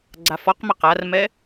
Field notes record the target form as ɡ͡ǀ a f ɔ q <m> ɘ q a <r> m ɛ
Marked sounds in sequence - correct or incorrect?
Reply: correct, correct

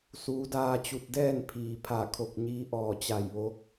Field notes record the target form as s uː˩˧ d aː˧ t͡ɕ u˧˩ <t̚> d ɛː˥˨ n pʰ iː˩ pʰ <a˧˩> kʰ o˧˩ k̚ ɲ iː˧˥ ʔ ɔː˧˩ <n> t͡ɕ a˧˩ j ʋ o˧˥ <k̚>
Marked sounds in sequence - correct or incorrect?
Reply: correct, correct, incorrect: none, correct

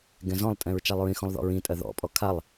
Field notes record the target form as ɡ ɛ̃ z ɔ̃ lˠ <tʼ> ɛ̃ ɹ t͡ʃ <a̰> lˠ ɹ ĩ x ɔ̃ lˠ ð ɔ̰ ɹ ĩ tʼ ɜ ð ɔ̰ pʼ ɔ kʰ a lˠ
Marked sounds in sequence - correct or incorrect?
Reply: correct, incorrect: a

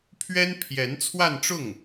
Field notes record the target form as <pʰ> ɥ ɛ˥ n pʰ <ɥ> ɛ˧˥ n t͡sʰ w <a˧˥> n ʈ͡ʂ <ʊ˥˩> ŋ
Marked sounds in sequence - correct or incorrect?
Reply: correct, incorrect: j, incorrect: a˥˧, correct

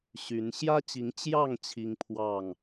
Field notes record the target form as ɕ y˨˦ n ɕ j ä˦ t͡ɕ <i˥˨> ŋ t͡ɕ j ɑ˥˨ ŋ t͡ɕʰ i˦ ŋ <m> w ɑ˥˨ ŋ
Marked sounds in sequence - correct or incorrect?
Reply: incorrect: i˨˦, incorrect: pʰ

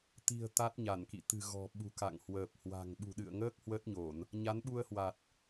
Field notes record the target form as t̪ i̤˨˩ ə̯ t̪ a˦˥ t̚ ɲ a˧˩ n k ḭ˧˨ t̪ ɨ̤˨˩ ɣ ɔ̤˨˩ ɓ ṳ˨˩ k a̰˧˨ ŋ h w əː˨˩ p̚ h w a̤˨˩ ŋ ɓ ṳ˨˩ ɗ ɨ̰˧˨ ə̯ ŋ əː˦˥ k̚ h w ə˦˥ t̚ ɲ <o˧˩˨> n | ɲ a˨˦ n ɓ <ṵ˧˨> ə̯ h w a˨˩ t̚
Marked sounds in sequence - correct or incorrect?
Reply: correct, incorrect: u˧

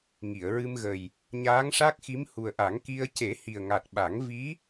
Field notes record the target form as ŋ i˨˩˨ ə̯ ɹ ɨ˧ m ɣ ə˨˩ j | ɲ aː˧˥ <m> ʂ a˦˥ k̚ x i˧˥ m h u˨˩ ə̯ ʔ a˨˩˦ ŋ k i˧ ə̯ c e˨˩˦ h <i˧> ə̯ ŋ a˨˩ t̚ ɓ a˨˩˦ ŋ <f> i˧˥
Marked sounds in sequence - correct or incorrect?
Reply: incorrect: ŋ, incorrect: i˨˩, incorrect: v

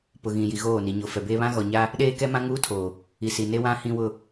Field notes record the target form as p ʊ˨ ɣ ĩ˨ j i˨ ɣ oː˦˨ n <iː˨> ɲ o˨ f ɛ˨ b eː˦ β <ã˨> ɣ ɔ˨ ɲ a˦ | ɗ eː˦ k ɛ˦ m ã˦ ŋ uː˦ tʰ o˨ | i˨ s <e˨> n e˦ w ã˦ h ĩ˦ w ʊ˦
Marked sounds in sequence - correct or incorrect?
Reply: incorrect: i˨, incorrect: ã˦, incorrect: i˨

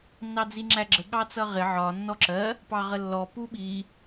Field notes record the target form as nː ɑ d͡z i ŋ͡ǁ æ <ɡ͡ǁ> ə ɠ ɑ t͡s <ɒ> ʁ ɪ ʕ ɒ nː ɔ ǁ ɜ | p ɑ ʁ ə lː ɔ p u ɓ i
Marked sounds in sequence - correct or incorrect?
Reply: correct, incorrect: ʌ

